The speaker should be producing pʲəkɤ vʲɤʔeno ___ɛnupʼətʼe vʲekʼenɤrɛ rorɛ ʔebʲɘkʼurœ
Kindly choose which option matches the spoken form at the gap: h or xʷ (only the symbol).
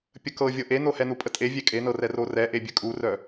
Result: h